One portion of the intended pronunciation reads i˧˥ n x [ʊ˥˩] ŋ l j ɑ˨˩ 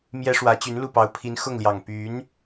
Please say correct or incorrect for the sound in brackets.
correct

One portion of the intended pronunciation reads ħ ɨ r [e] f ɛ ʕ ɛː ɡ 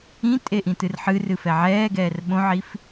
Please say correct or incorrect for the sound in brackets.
incorrect: ɨ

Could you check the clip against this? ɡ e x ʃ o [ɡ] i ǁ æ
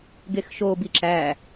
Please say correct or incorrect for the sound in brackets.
incorrect: b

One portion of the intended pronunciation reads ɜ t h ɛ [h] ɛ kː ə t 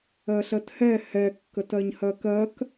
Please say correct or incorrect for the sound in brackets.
correct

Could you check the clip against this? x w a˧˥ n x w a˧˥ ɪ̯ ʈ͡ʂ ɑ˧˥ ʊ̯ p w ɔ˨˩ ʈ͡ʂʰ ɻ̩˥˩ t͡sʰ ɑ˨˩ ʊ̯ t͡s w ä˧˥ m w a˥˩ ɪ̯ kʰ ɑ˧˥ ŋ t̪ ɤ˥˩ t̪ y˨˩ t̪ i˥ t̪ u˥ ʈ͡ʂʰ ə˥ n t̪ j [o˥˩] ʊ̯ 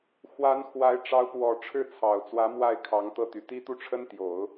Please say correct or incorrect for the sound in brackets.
incorrect: o˨˩˦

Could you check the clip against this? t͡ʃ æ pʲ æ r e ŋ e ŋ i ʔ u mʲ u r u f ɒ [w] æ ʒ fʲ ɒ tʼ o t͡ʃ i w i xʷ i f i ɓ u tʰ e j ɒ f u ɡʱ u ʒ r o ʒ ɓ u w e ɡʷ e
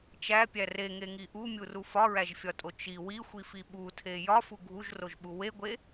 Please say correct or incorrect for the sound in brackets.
incorrect: ɹ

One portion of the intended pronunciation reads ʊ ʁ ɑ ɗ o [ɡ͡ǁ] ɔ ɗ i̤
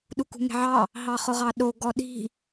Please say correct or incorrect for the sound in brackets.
incorrect: ɡ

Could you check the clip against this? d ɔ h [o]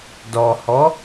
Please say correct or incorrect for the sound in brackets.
incorrect: ɔ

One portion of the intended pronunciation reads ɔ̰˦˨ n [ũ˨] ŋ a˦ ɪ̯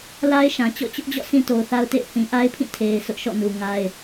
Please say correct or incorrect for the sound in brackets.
incorrect: u˨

